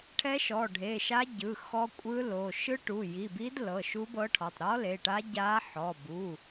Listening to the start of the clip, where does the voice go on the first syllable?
rising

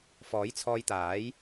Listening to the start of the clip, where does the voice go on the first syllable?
rising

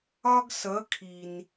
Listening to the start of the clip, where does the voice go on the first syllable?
high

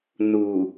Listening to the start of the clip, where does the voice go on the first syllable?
low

